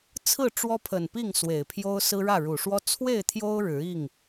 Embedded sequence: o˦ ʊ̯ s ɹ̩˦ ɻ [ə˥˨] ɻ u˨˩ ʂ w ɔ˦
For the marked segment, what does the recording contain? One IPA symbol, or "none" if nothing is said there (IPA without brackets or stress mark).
ä˥˨